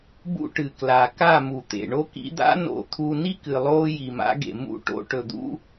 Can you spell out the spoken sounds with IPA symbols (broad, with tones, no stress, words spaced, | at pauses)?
bṵ˦ʈɨ˨kla˨ ka˦˨mu˨t̪ḛ˨ ɳo˧kḭ˧d̪a̰˦ no̰˧t̪ʰu˧ ni˦kɨ˨ lˠoː˦ji˨ma̰˦ɡḛ˨ mṵ˦˨ʈo̰˧ ʈɵ˨d̪ṵ˦